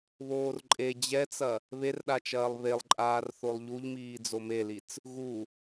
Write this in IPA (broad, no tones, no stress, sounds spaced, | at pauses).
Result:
β oː r ǃʼ e d͡ʑ ɛ t͡s ɐ | β e r ɗ a t͡ʃ ɐː lˠ β e lˠ ǃʼ aː r θ o lˠ ʎ u ʎ m iː d͡z o m e l i t͡s | ɣ u